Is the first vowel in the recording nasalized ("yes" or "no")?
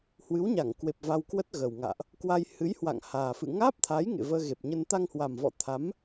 no